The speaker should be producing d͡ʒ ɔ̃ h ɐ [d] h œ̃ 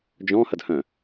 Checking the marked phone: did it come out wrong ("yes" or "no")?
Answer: no